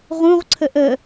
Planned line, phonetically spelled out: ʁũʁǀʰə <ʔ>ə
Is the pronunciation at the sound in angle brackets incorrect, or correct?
correct